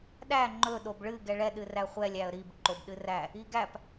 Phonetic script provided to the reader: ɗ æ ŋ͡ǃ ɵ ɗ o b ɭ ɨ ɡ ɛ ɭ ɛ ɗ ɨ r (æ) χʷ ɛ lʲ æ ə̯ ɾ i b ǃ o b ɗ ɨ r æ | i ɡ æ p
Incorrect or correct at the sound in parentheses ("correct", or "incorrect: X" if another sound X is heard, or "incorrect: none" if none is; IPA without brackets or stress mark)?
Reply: correct